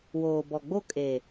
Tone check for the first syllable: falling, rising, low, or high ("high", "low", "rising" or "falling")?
low